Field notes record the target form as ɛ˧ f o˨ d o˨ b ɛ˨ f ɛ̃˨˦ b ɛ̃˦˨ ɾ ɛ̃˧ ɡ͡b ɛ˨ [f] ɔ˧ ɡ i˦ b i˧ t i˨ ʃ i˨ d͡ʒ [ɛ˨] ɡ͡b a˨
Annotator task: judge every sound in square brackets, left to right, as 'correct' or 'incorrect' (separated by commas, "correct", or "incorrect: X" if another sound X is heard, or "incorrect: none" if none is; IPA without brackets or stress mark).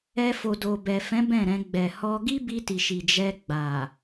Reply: incorrect: h, incorrect: ɛ˧